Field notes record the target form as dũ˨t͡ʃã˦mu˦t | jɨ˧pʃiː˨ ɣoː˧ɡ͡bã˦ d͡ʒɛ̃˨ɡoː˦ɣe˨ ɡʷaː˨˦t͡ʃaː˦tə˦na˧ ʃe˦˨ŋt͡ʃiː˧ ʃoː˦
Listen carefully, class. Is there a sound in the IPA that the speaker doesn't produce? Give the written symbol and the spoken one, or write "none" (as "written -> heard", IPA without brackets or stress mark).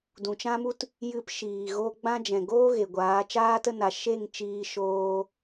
none